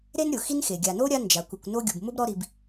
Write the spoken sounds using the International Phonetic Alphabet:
ɾe˦nɾʲʊ˩ xi˦nxe˩ ɡʲa˨no˥ɾʲa˦ nd͡ʒa˩kʷɪ˨kʷno˦ ɡʲu˩bmʊ˥bɾɔ˦ɾi˨b

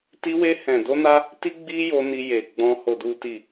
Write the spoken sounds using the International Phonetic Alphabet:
ti˧we˧ hɛ̃˨do˧ na˦ | ti˦ɡ͡bi˦jo˧ ni˧je˨ɡ͡bɔ̃˧ ho˨du˨ti˨

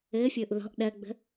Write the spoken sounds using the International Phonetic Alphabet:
ɘːfʲʊːʔ ðɔ̤ʔ ɗɜɡ͡bə̤

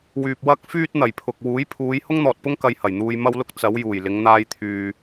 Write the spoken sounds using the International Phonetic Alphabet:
wyː˨p̚ wɐ˥k̚fyː˥t̚ n̪ɐ˨˩jpʰʊ˨k̚ wuː˨˥jpʰuː˨˧j hʊ˥ŋn̪ɔː˨t̚pʊ˥ŋ kɐ˧jhɐ˨˩jn̪uː˧j mɐ˧wlʊ˧k̚ t͡sɐ˨˧w juː˨˩jlɪ˨˧ŋ n̪aː˧jt̪ʰyː˨

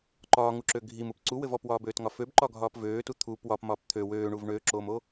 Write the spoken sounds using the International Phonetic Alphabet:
ǃɒːŋuǁø ɡʱimup ǀuwɘv ɔpwɒːbøːtŋɒ føbǃɒɡʱɒːp vøːtu t̪ʰup wɒpmɒːp t̪ʰø wøːɳuv ɳøːǁoːmo

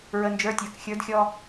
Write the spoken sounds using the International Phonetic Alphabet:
ɹə˩ nd͡ʒə˞˩˥tʲə˞˩kxʲə˞˩˥dxʲɔ˧

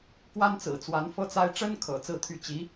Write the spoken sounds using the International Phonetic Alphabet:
kwa˥nt͡sɹ̩˨˩t͡swa˧˥n fɤ˥t͡sa˥ɪ̯ ʈ͡ʂə˥nkʰɤ̰˨˩ t͡sɹ̩˥˧t̪ʰy˥˩ t͡ɕi˧˥

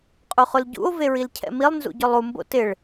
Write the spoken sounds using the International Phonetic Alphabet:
qʼuχʊlɟṵo̯ veɹilcʰɛ̰milˠ nzṵɟʊlˠu mbo̰tɪɭ

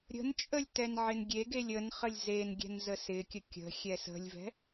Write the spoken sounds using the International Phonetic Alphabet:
ɾʲə̤nt͡ʃʼəlʲ tɛnʕɪnɡʲeɡelʲ ənχəlʲ zenɡʲɛ̤n zəsɪkʲə kʲə̤xʲɛ sə̤lʲvɛ̤

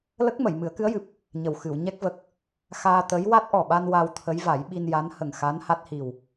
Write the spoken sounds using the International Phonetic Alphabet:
lə˦˥k̚mə˨˩˨j mɨ˨˩˦ə̯kɨ˧˥ə̯jɨ˨˩p̚ | ɲə˨˩wxɨ˨˩˨w ɲɛ˦˥k̚və˨˩k̚ | xaː˧t̪ə˧˥j wa˦˥t̚ʔɔ˨˩ɓa˧n wa˧wt̪ʰə˧˥jva˨˩˦j ɓi˧nja˧˥n hə˨˩ŋxa˧˥n ha˦˥t̚hi˨˩w

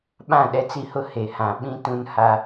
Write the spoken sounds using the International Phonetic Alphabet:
ɓã˦˨ɗɛ˦t͡si˦hʊ˦ he˨hã˨ ɓĩ˦ tũ˦nha˦

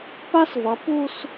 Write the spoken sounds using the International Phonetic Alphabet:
pa˥svʌ˩˧ pu˥˧s

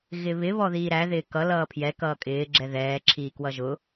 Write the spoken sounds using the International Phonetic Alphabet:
ɣɪβɪ βɔðiːɾæ ðɪːkʌ lʌːpʰjɛ kʌːkʼɪː ɡ͡ǁɛðɛː ǁʰiːkwʌʒʊ

